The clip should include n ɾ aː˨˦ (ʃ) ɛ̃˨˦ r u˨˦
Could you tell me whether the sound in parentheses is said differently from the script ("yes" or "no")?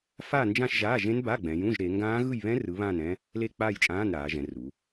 yes